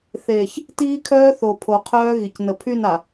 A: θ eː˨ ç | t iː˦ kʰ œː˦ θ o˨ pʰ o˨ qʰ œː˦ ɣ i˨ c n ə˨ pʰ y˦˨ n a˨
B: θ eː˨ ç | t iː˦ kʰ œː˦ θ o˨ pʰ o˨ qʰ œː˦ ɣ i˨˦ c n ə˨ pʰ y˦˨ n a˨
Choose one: A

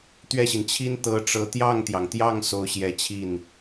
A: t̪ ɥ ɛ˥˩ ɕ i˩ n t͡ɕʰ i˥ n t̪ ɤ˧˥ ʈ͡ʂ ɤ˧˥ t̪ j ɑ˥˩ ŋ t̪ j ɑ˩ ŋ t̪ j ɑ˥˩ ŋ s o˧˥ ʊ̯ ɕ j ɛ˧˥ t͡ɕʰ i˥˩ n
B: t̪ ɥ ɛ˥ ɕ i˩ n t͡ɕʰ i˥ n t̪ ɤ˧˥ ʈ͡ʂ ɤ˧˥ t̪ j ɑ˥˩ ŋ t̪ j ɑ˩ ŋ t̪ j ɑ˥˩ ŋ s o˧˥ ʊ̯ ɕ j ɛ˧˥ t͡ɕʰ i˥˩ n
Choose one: A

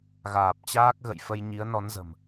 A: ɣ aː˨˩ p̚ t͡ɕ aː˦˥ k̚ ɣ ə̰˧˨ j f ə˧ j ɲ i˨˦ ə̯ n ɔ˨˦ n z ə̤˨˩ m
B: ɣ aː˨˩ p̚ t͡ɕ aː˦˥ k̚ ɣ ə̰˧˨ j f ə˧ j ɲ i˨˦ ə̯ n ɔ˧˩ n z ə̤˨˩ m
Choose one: A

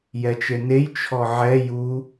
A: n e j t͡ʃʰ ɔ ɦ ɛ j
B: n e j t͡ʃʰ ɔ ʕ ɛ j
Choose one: B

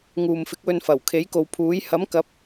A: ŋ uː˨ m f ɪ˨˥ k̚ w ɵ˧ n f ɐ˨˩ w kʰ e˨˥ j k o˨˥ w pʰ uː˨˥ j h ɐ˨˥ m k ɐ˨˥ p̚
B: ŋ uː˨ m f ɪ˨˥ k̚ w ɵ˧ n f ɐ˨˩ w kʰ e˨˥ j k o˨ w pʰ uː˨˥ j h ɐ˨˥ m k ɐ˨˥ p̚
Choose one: B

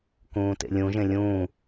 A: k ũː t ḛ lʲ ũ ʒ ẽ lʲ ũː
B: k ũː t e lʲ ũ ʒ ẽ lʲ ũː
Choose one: A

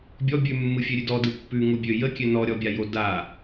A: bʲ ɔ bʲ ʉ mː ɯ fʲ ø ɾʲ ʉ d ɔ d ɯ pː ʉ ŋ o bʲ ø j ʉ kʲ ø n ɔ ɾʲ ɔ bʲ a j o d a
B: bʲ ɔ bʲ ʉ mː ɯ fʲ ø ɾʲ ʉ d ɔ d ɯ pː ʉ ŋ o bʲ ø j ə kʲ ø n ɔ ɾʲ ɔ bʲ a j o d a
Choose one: B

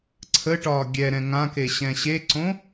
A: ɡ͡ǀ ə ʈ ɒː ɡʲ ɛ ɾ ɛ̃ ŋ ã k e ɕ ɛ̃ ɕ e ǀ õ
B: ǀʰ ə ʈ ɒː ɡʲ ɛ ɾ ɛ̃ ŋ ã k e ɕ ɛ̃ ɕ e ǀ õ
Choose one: B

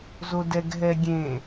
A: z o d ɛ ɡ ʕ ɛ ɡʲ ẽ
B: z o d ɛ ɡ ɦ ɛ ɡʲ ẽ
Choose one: B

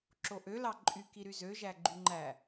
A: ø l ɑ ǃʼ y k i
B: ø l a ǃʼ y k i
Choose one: A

